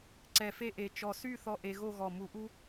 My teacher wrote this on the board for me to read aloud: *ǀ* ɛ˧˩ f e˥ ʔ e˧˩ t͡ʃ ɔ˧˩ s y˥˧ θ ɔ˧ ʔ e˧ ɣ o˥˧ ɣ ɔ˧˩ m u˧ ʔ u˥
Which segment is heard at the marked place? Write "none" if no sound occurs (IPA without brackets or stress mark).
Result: ǀ